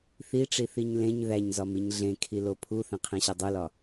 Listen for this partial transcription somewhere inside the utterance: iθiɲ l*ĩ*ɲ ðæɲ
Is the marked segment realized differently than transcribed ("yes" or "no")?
yes